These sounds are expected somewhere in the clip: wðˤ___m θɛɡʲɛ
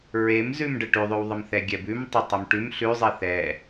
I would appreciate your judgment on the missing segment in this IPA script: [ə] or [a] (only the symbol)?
ə